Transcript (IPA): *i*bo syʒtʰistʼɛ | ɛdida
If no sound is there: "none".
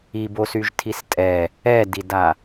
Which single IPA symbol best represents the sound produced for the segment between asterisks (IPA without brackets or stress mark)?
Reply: i